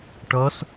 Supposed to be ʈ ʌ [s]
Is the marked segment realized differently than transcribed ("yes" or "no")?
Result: no